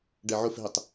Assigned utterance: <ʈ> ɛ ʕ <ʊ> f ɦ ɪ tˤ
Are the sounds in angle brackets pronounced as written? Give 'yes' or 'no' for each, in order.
no, yes

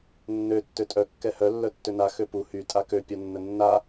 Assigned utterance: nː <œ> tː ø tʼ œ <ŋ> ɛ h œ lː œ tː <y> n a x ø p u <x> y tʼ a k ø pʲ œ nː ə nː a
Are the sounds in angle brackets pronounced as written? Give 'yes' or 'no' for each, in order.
no, no, no, no

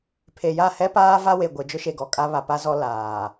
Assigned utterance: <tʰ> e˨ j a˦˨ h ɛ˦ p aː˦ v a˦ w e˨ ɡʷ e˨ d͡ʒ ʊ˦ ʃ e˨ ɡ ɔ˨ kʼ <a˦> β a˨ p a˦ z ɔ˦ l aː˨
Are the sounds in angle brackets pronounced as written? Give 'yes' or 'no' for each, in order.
no, yes

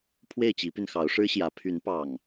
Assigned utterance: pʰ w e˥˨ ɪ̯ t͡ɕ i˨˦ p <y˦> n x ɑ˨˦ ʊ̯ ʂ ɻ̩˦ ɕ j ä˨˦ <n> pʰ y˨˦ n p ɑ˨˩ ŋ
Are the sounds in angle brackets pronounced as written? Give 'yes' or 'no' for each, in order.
no, no

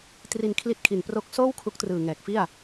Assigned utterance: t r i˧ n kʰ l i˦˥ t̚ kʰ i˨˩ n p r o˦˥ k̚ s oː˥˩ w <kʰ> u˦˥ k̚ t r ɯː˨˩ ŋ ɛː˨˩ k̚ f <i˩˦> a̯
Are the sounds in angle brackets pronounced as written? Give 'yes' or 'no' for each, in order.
yes, no

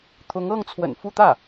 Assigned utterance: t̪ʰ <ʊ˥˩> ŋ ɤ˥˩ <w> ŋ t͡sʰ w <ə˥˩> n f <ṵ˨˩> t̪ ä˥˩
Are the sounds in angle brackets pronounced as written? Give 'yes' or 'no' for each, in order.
no, no, no, no

